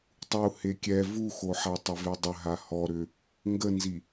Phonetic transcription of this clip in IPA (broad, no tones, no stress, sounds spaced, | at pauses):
tˤ u h e kʲ ɛ v u x o ħ a tˤ ɪ v e dˤ ə ɦ a h ɔ ɾ ʏ | ŋ ɡ ə n z i